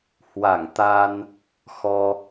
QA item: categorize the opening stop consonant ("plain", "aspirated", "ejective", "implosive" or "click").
plain